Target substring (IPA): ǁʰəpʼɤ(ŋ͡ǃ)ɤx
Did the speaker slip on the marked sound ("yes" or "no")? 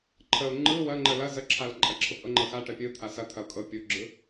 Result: no